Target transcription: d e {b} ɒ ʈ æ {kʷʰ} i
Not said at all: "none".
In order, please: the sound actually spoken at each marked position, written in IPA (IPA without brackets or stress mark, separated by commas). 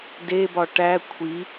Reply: b, kʷʰ